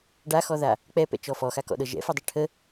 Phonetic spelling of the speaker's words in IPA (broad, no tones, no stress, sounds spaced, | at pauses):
ɖ a x ɔ ð a | k͡p ɛ p ɛ̰ t͡ʃ ɔ f ɔ x a k ɔ̰ ɗ ɤ ʒ ɛ̰ f u dˤ ɛ ʈʰ ə